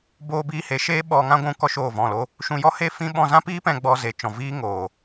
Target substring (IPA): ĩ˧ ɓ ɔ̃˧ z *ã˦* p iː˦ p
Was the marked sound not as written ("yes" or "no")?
no